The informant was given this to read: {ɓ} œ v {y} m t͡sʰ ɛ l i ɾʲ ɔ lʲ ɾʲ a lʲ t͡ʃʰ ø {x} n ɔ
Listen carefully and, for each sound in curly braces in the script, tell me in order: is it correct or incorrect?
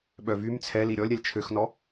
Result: correct, correct, correct

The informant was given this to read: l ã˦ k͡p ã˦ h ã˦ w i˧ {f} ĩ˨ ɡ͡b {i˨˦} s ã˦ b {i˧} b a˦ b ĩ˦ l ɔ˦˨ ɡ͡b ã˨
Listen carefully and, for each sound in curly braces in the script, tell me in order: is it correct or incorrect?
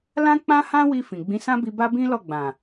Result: correct, incorrect: ĩ˨˦, correct

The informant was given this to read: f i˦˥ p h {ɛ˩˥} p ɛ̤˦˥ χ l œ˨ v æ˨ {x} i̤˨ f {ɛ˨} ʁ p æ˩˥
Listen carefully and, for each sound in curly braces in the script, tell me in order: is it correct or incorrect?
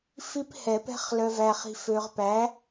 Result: incorrect: ɛ˨˩˦, incorrect: χ, incorrect: ø˨

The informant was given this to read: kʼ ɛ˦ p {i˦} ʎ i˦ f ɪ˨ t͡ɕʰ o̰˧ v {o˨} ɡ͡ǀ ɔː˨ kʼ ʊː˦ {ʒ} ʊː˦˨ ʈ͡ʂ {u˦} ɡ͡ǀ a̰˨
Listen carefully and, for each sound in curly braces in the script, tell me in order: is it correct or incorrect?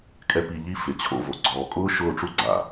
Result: incorrect: i˧, correct, incorrect: ʃ, correct

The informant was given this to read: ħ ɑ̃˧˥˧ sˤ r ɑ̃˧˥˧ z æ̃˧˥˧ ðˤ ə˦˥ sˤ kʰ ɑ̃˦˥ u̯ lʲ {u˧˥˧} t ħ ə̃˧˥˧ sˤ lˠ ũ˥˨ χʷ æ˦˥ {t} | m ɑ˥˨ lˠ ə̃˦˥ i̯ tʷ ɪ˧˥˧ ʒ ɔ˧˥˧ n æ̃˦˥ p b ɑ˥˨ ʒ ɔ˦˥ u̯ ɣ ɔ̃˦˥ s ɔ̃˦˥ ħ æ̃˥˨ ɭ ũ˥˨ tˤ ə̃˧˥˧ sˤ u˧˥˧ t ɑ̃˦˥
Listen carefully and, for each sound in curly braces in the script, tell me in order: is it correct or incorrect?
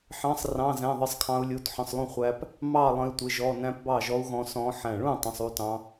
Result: correct, incorrect: p

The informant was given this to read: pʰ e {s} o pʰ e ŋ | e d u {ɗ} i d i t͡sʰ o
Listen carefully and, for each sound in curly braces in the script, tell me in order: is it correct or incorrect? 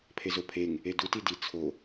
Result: incorrect: z, incorrect: t

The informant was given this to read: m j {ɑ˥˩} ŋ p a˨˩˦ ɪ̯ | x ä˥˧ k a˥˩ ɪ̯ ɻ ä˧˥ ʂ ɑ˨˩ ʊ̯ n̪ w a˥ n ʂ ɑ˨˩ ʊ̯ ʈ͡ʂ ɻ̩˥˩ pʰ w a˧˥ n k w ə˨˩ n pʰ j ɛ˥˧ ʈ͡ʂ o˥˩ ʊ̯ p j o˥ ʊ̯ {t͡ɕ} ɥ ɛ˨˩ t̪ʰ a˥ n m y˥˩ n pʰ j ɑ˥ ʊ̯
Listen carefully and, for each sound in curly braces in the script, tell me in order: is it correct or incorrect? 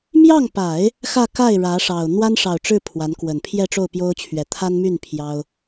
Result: correct, incorrect: t͡ɕʰ

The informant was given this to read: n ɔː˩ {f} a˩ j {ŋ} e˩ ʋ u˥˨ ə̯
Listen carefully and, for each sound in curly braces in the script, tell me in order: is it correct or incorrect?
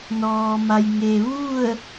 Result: incorrect: m, correct

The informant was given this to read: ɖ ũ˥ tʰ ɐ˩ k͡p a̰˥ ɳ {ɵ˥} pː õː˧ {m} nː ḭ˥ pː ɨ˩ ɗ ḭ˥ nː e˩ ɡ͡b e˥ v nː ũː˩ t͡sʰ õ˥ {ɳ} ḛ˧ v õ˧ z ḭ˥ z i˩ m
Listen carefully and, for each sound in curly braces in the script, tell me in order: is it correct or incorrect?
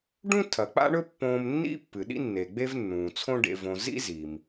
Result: correct, correct, incorrect: ɖ

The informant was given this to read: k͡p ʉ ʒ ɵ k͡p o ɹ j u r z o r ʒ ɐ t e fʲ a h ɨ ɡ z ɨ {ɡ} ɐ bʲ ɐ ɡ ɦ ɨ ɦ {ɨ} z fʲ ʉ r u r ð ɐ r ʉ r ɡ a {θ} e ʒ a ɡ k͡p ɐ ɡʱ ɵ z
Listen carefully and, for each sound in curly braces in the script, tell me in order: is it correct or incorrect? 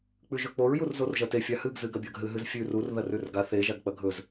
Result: correct, correct, correct

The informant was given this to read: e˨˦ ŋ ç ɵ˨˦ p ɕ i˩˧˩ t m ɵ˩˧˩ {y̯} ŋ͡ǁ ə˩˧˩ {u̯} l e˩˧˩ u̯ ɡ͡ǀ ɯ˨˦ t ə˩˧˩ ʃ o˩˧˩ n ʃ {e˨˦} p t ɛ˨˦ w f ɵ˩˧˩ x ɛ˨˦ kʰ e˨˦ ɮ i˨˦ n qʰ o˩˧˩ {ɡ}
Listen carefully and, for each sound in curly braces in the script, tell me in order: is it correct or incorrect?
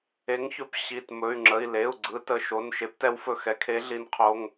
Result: correct, incorrect: i̯, correct, incorrect: ŋ

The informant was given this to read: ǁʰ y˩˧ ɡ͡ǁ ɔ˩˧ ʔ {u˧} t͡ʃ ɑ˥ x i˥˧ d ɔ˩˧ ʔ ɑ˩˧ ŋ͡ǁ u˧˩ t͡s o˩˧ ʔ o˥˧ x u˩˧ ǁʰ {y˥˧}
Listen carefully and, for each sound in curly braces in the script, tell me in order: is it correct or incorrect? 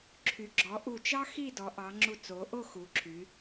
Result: incorrect: u˧˩, incorrect: y˩˧

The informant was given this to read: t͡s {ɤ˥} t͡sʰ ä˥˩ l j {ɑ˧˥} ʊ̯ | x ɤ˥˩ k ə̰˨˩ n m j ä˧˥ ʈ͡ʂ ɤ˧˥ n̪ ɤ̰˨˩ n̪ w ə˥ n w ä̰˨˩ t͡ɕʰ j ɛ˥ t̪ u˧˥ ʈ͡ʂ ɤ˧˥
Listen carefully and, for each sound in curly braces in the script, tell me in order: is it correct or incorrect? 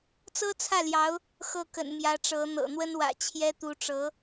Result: correct, correct

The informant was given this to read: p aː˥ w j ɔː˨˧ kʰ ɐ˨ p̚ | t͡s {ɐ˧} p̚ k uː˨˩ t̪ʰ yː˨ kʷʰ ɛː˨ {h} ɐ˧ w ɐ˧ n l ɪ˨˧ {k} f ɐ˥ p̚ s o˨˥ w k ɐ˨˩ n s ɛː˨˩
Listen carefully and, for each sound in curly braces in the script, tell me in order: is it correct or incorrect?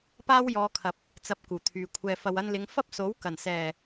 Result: correct, incorrect: f, incorrect: ŋ

